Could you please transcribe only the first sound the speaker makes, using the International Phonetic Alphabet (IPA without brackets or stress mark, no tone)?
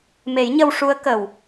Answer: m